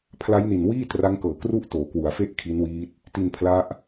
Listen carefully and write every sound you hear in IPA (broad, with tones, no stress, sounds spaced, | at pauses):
pʰ l a˦˥ j n i˨˩ n w iː˥˩ t r a˦˥ ŋ k ɤː˨˩ k r u˥˩ ʔ t oː˩˦ k w u˩˦ a̯ f e˥˩ ʔ kʰ i˦˥ n w iː˦˥ t̚ | t i˧ n pʰ l a˦˥ ʔ